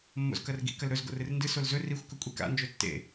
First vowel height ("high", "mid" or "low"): mid